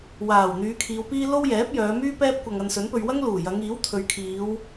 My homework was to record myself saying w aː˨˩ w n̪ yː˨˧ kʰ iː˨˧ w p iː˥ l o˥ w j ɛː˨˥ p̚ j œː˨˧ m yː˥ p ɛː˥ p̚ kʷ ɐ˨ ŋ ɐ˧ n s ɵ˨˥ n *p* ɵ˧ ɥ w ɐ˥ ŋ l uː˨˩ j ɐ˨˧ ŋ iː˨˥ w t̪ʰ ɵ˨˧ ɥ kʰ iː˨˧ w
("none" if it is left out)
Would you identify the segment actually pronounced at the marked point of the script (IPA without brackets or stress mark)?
p